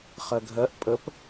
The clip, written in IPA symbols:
χ ɜ ɡʱ ɜ ʔ pʼ ə p

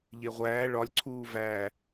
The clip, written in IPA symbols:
ʎ e ʁʷ æː ɭ ɒ lʲ ǀʰ uː v æː

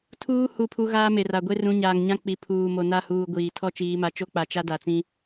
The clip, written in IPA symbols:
tʰ uː˦ h u˦˨ pʰ u˦ ɣ aː˦ m e˨ r a˨ ɡʷ e˦ r ũ˨˦ ɲ aː˨ ŋ ɲ ã˦ k͡p i˨ pʰ uː˨ m o˨ n a˦˨ h uː˨ ɡʷ iː˨ tʰ ɔ˦ t͡ʃ iː˨˦ m a˨ t͡ʃ o˦ k͡p a˨ t͡ʃ a˦ d a˨ t͡s ĩ˦

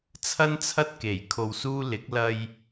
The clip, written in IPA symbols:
t͡sʰ ɐ˥ n t͡sʰ ɐ˥ t̚ k e˨˩ j kʰ o˧ w s uː˥ l ɪ˨˥ k̚ l ɐ˧ j

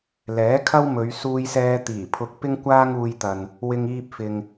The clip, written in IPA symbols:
l ɛː˨˥ kʰ ɐ˥ w m ɵ˨˧ ɥ s uː˧ j s ɛː˧ t̪ iː˨˩ pʰ ʊ˧ k̚ p ɪ˥ ŋ kʷ aː˥ ŋ uː˧ j t̪ ɐ˨ n | w ɪ˧ ŋ iː˧ p̚ f ɪ˨ ŋ

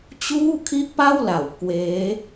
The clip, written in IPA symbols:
t͡ɕ uː˥˩ kʰ i˥˩ ʔ p a˥˩ w l a˩˦ w k w eː˦˥

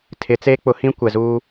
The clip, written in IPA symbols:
tʰ ɪ˨˦ t͡s eː˦ k͡p ʊ˨˦ h ĩ˦ kʷ ɛ˨ z uː˦

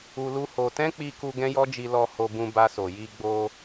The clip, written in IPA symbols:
u˧ l u˦ h o˧ t ɛ̃˦ k͡p i˧ k u˧ ɡ ɛ̃˦ j ɔ˦ d͡ʒ i˧ l ɔ˧ h o˧ b ũ˧ b a˧ s o˨ j i˧ ɡ͡b o˧

